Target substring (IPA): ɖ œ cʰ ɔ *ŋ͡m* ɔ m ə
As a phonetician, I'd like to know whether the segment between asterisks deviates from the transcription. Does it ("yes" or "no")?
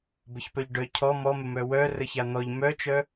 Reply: yes